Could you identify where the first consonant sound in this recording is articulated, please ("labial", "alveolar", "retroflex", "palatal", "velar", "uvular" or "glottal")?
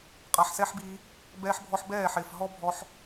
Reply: uvular